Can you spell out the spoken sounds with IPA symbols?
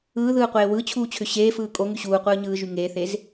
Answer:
ɯː ð ɯː qʷ eː w ɯ t͡ɕʰ uː t͡ɕʰ ʏ ɕ eː f ɯː kʼ o ŋ y ɕ uː qʷ ɯː ɲ ɯː ʒ y ŋ eː θ e z

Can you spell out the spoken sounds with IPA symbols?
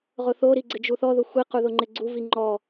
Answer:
ʁ ʊ θ o ɾ i ɡ͡ǀ ɪ d͡ʒ u θ ɔ ð ʊ xʷ i q u ð ʊ ŋ͡ǃ ɪ ɡ͡ǀ u v i ŋ͡ǃ ɔ

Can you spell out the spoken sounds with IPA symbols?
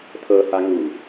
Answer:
tʰ ɤ h a ŋ u

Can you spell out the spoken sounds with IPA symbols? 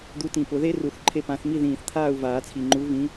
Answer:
d̪ u˨˦ t ĩ˨˩ p ʊ˨˩˦ ð e˦˥ r u˨˩˦ θ ǃʰ e˥˨ p ã˨˦ θ m i˥˨ ð ĩː˨˩ θ t̪ʰ aː˥˨ u̯ v aː˨˩˦ t͡sʰ i˨˩ ŋ͡ǃ u˨˦ v ĩ˨˦

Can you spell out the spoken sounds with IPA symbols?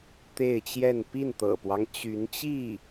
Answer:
t̪ e˥˧ ɪ̯ t͡ɕ j ɛ˥˧ n p i˥˩ n t̪ ɤ̰˨˩ p w ɑ˦ ŋ t͡ɕ y˧˥ n t͡ɕ i˥˩

